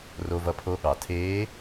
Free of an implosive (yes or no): no